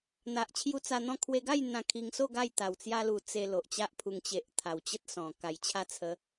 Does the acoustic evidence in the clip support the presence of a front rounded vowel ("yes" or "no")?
no